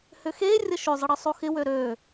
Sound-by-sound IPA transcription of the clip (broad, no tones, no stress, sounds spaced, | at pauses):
h ʏ x e rʲ ə ʃ ʏ zˤ ə ɽ ə sˤ o x ɪ w ø ɾ ø